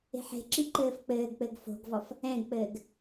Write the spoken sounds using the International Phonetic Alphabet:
e̤ ħ e̤ ǁ i ǃ ɘː f k͡p ɘː ɡ k͡p ɘ ɡ f o̤ ɡ v ɔ f | ɛ̃ ɡ k͡p ɘː ɡ

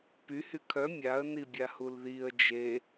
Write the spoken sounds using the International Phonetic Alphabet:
p y h y kʰ œ mʲ a ə̯ n i bʲ a h u l ð i ə̯ d͡ʒ e

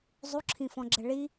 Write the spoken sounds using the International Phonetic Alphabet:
zˤ u ǁʰ ĩ f ɔ̃ ɡ͡ǁ ɛ ɭ i

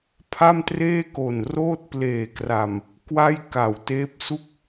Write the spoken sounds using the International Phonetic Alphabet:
pʰ a˥˩ m t r eː˥˩ k o˨˩ n r oː˥˩ t̚ p l eː˨˩ k r a˨˩ m | k w a˥˩ j k a˨˩ w t eː˦˥ p̚ s u˥˩ k̚

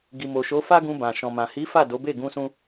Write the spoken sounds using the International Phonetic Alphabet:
ɡ i˨ m o˨ ʃ o˨˦ f a˦ ɡ ũ˧ b ã˨ ʃ ɔ̃˨ m ã˨ h i˨˦ f a˦˨ d o˨˦ b e˦˨ ɡ ũ˧ s ũ˧

